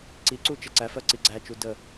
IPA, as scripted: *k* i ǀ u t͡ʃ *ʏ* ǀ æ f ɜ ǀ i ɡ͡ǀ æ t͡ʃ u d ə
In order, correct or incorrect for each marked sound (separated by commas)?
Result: incorrect, incorrect